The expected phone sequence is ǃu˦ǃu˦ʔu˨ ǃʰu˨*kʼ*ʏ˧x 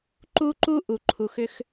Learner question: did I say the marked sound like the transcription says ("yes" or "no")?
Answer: no